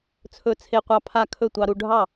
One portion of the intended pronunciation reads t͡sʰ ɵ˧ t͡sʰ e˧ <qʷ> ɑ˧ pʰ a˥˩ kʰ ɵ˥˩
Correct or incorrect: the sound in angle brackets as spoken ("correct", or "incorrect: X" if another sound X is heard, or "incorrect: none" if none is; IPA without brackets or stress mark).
correct